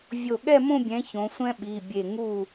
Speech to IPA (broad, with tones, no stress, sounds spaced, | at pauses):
vʲ o˧˩ ɠ ɛ˥˧ m õ˥˧ bʲ ɛ̃˨˦ ç õ˨˦ sʷ ɛ̃˥ ɓ i˩˧˩ bʲ e˧˩ ŋ u˧˩